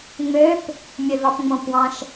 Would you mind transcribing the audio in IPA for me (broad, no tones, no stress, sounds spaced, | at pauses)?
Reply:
ŋ͡m ø p | mʲ ø v ɑ p ŋ͡m õ p w ɑ̃ ʃ